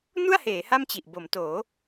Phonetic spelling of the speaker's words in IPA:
n u˥˩ a̯ h eː˩˦ h a˥˩ m t͡ɕ i˨˩ ʔ b o˩˦ m t oː˩˦

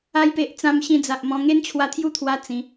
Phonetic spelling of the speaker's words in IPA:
a˧ j p e˨ ʔ t͡s ã˧ m ɕ ĩ˧ d͡z a˨ ʔ m ɔ̃˧ ŋ e˦ n t͡ɕʰ w a˧ t̪ʰ j u˥˧ t̪ʰ w a˧ t͡s ĩ˨˦

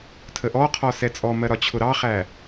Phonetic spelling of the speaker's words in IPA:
tʰ ə ʔ ɔ qʰ ɔ s ɛ t͡sʼ ɔ m ɜ ɾ ɒ t͡ɕʰ ʊ ɾ ɑ χ æ

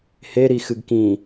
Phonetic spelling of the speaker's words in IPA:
h e ɾ i x ɨ ɡ k ĩ

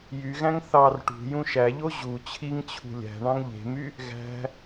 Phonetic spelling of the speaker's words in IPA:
j y ɣ æ̃ ŋ θ ɑ r ʈ ṳ j ũ ʃ æ ʎ o ʑ u t͡ɕʰ i ŋ t͡ɕʰ ṳ lʲ æ̤ ɳ ɑ̃ ŋ ʎ e̤ m y | ɣ æ̤

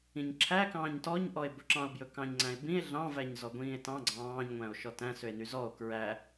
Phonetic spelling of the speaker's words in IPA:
ĩ ɲ ǁʰ æ k ɑ̃ː ɲ t ɔ ɲ ʔ ɔ e̯ b ɵ ǁ ɑ̃ o̯ b j ɵ k ɑ̃ ɲ ŋ͡ǀ æ̃ e̯ b ĩ e̯ ɮ ɑ̃ v æ ɲ z ɔ ɡʷ ĩː e̯ t ɑ̃ ɡ͡ǀ ɑ̃ː ɲ ŋʷ æ̃ o̯ ʃ ɔ t æ̃ s ø e̯ n y z ɔ o̯ k ɹ æ

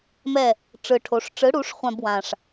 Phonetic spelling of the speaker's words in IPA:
m ɛ˥˩ | ʈ͡ʂ ɯ˨˩ ʈʰ o˩˥ ʂ ʈ͡ʂ ɯ˩˥ ɽ u˩˥ ʂ χʷ ã˥˧ b w ã˨˩ ʂ

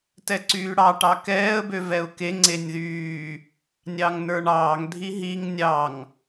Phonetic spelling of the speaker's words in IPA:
t ɛ ǀ yː ɽ ɑ ʈ ɑ k ɛː ə̯ b ø v ɛ ʊ̯ k e ŋ͡ǀ e nʲ ð yː | nʲ ɑ ŋ n ə˞ ɳ ɑː ŋ dʱ i ɦ i ŋ nʲ ɑ ŋ

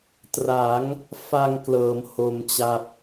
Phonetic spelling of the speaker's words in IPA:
t r a˩˦ ŋ | f a˧ ŋ k l ɤː˩˦ m h o˧ m t͡ɕ a˥˩ p̚

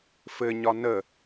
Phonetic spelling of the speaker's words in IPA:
f ɘ ɲ ɒ n ə

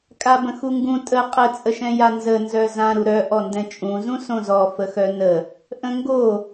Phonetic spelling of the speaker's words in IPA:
kʼ a b ə̃ x u ŋ ɡ ũ tʼ ə qʼ ə t͡sʼ ə ʃ ɛ̃ j a n z ə n z œ z ã ɾ u ɾ œ ʔ ɔ n d ɛ̃ t͡ʃʼ ũ z ũ s õ z ɔ f ə x œ n ə | ʔ ə̃ ŋ ɡ o

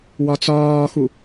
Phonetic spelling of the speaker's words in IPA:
w ɒ t͡s ɒː x u

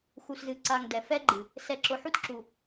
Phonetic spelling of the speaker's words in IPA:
x u˨ s z ɨ˨ ǀ a˨ ŋ d ɛ˨ f ɛ˦ ɡ͡ǃ ɨ˨ | s ɛ˨ ǁ ʊ˨ ħ u˦ t ǁ u˨

